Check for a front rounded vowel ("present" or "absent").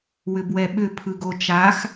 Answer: present